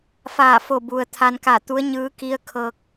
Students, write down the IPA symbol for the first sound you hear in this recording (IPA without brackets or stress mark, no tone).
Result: f